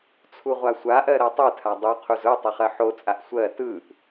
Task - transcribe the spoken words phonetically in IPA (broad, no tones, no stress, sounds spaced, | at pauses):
t͡sʰ u ʁʷ a sʷ a ʔ ɜ ɾ ɜ tˤ ɯ tʰ a dˤ u qʰ u z ʊ tˤ ɘ χ ɜ ħ o t͡sʼ a ʔ sʷ ɜ t ɯ ʔ